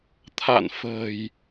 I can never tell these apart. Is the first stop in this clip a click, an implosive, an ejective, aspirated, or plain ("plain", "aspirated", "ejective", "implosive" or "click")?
aspirated